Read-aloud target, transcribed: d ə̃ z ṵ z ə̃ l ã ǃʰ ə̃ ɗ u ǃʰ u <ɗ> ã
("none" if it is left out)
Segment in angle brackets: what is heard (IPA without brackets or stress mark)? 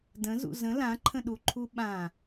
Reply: ɓ